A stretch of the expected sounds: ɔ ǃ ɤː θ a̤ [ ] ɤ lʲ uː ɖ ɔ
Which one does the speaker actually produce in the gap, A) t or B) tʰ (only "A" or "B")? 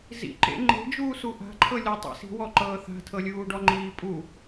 B